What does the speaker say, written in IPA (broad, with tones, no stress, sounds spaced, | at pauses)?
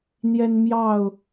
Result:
n̪ j ɛ˦ n m j ɑ˥˨ ʊ̯